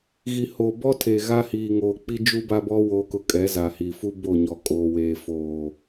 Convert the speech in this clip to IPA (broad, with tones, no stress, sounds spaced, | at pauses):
ɣ i˨ h o˨ b ɔ˦ tʰ e˨ ɣ a˦ h iː˨ ŋ oː˨ k͡p i˦ d͡ʒ u˦ b a˦ b ɔ˦ w o˦ k ʊ˦ kʼ ɛ˨˦ z a˨ h i˨ f u˦ b o˦˨ ɲ ɔ˨ kʼ oː˨ w eː˨ f oː˨